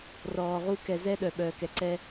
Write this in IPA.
r ɔː˨ ʁ u˦ k ɛ˨ z ɛ˦ ɗ œ˨ ɓ œː˨ k ɛ˨ ǀ ɛ˦

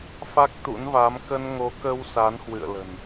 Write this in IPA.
f a˦˥ k̚ t̪ ṵ˧˥ n v a˨˦ m k ə˧ n ŋ o˨˦ k ə˧ w s a˨˦ n h w ɨ̰˧˨ ə̯ l ə̤˨˩ n

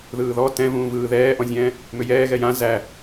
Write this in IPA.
ð ɯː ð ɔ t ɛ̃ v ũː v ɯː ð ɛː ʔ ɔ̃ zʲ ɛ̃ː | m ʏ j ɛː ɣ ɛ j ã z æ

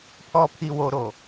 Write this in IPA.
pʰ ɔ˨ pʰ i˨ w o˨ ɾ o˨

